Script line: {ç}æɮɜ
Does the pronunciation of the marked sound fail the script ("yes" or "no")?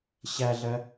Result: yes